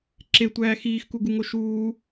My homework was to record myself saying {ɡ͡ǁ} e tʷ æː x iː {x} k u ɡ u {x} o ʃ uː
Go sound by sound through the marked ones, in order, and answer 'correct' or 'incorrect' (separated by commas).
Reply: incorrect, correct, incorrect